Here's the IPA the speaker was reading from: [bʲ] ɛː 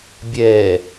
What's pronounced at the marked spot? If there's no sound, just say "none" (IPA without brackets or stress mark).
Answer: bʲ